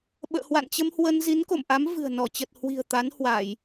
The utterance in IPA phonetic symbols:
ɓ ə̰ː˧˨ h w a̰˧˨ n t͡ɕ ə˧ m h w ə˧ n z i˨˦ n k o̰˧˨ m ʔ a˨˦ m v ɨ̤˨˩ ə̯ n ɔ˧˩ t͡ɕ ə˨˩ t̚ h w i̤˨˩ ə̯ t̪ a˨˦ n h w a˧˩˨ j

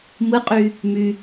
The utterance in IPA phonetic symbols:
m ɯ qʼ y | m y

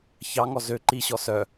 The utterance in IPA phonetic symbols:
ç ɑ ŋ ɔ z ø ǃ i ɕ ɔ s œ

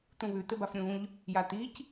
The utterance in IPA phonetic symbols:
t̪ ũ β ʉ t̪ ɘ b a f ɾʲ ũ ʎ | j a t̪ i c

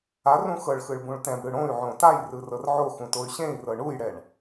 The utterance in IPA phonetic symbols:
a r ũ x ɤ ɭ x ɯ ɭ b ũ ɭ t ɛ̃ b ɽ ɯ ɽ õ y̯ ʕ õ t a j r ɯ r ɤ r ʕ o x ũ t o y̯ ɕ ẽ i̯ r ɤ ɳ u j ɽ ɛ ɳ

